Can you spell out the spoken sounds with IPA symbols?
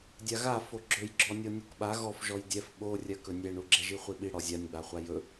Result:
dʲaɣa foɡ͡ǁɵjɡ͡ǁɔ nʲɔnʲukɓa ɣɔfʒɔj dʲɛf ɓorʲɜ kɵnʲɛɳu ɡ͡ǁɛʒiχʷiɓi ɽɔzʲanʲɡ͡baχʷa jɵ

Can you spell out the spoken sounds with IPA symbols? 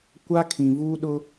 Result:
kʷa˦kʰĩ˨vuː˦ ɗʊ˦

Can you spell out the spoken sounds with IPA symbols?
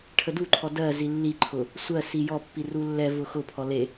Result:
ʈʰəduǃʰɔ dɜ zilːiǃʰʊ | sʷɜ sijɔpːi rulːɛvʊ xʊpʰɔ le

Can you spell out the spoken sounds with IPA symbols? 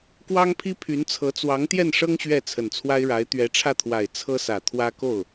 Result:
kwɑ˥ŋpʰi˥pʰy˧˥nt͡sʰɤ˧˥ t͡swɑ˧˥ŋt̪jɛ˥˩nʂɤ˥ŋ ɕɥɛ˥˩ t͡sʰə˨˩nt͡sʰwa˥ɪ̯ɻa˧˥ɪ̯ t̪ɥɛ˧˥ʈ͡ʂʰä˥˩t̪ʰwa˨˩ɪ̯ t͡sʰɤ˥sä˨˩t̪ʰwä˥ ko˥˩ʊ̯

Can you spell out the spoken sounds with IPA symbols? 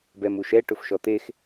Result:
bɛmuʃɛ ʈʊfʃɔt̪ex

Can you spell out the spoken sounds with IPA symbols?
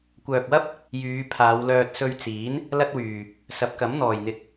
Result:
kʷœː˨k̚wɐ˥p̚ | jyː˨˧pʰaː˨˧wlœː˧t̚ sɵ˧ɥt͡siː˨˥n | lɐ˥t̚wyː˨ | sɐ˨˥p̚kɐ˨˥mn̪ɔː˨jn̪ɪ˧k̚

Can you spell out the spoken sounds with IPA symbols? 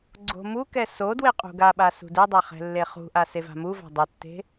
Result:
ɡ͡ǀo̤mukɛ so dweqʼṳɡaɓa sṳdedˤa χɛ̤lːeχṳʔa seva̤muva̤ dˤɵtːe̤

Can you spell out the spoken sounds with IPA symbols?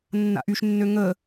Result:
nːa̰ʔyʃnːø ŋə

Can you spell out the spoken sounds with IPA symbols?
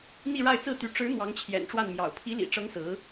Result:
n̪i˥˧ɻa˥˧ɪ̯ t͡sɹ̩˥˩t̪y˧˥ ʈ͡ʂɻ̩˧˥ n̪wɑ˧˥ŋt͡ɕʰjɛ̰˨˩nʈ͡ʂwa˥˩nmjɑ̰˨˩ʊ̯ pʰi˧˥lḭ˨˩ʈ͡ʂɤ˧˥ŋ sɹ̩˧˥

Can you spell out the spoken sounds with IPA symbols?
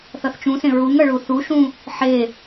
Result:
θʌθt͡ʃũsẽ ɹuŋʌ ɭuθuʃũ | ħe

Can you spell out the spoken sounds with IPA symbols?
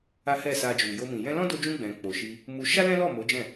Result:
a˦hɛ˦˨sa˧d͡ʒu˨ jo˧mĩ˨ jɛ̃˧lɔ̃˦do˧d͡ʒũ˧ ɡ͡bɛ̃˨k͡po˨ʃi˧ | mu˦ ʃa˦lɛ̃˦lɔ˦˨ mo˨˦d͡ʒɛ̃˦˨

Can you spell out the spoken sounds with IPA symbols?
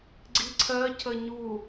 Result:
ɡ͡ǀiǀʰɜcʰə ɲu

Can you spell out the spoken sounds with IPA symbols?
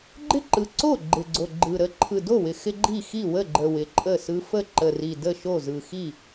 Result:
ɡ͡ǃɪ˥˩ǃɯ˨˩ ǀo˥˩ ɡ͡ǃɪ˨˩ɡ͡ǀo˨˩ ɡ͡ǃɯ˨˩ɾə˥˩ ǃʰɯ˨˩do˥˩wɪ˨˩ xɪ˦ ɡ͡ǃi˥˩xi˥˩wə˥˩ɡ͡ǃə˨˩ wɪ˨˩ǃʼə˥˩sɯ˦ fə˥˩ǃə˨˩ri˨˩ də˥˩ʃo˥˩ zɯ˨˩xi˥˩

